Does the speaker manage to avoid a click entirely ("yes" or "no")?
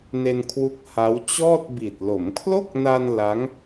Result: yes